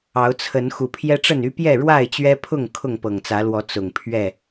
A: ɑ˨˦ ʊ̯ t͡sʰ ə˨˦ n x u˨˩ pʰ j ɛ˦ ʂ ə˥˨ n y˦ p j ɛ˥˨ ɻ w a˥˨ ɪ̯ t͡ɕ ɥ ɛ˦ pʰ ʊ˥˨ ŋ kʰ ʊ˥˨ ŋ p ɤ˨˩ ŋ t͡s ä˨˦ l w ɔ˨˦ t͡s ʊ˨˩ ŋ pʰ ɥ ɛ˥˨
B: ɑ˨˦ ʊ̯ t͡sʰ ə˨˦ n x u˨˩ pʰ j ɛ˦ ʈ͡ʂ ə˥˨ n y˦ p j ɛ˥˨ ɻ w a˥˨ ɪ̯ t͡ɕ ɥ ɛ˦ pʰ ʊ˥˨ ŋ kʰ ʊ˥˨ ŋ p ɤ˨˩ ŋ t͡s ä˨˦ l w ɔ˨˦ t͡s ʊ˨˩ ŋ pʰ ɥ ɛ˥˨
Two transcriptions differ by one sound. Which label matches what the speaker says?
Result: B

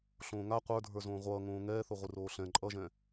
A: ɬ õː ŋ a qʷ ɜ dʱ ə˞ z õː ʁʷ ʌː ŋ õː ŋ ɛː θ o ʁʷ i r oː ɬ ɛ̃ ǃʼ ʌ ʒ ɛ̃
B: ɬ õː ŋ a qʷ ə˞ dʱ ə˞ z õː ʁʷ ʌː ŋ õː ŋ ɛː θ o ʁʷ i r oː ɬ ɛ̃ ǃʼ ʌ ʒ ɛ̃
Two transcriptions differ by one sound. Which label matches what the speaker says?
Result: B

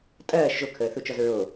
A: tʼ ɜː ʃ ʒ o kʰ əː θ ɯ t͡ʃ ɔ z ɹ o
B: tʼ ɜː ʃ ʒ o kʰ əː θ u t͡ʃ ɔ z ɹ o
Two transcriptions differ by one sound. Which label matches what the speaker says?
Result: B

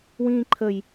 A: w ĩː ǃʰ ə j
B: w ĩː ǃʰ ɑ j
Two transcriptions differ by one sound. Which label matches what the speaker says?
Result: A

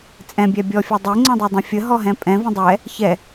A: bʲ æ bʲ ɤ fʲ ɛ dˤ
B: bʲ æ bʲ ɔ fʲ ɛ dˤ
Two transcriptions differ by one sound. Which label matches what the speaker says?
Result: B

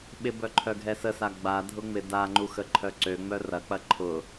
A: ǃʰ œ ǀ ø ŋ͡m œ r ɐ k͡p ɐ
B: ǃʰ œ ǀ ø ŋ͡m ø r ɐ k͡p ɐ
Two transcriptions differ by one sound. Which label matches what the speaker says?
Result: A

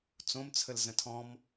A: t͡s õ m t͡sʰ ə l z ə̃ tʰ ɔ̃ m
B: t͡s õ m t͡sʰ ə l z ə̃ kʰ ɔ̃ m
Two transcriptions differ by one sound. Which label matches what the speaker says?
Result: A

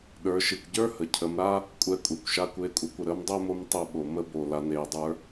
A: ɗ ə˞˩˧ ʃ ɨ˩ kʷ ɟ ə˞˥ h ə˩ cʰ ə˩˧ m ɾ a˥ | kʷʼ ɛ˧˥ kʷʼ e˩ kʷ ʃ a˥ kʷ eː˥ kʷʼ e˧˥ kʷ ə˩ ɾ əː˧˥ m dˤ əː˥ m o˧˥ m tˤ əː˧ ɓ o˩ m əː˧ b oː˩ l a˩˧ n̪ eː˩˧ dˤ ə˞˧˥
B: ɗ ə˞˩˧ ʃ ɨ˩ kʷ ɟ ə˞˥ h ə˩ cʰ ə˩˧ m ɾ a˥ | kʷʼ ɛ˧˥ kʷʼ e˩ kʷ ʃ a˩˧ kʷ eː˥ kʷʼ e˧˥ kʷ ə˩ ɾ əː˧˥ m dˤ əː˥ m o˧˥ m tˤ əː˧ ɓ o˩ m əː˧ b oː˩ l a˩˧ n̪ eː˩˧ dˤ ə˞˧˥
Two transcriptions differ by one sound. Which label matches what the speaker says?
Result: A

